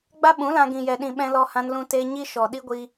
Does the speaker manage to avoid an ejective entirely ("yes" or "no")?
yes